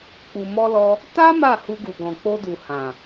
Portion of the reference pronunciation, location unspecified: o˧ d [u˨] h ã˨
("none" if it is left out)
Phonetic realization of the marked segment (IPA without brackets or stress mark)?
u˨